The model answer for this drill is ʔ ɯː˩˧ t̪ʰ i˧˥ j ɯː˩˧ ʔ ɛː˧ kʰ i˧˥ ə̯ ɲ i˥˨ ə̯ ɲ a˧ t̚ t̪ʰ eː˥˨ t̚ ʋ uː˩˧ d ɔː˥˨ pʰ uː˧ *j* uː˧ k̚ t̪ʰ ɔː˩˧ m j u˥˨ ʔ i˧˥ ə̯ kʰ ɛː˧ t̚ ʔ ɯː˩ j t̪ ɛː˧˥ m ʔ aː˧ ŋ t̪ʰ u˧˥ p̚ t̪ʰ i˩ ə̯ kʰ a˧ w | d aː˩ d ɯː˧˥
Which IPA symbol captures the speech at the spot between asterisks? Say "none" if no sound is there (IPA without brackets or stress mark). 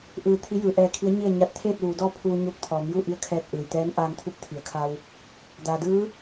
ɲ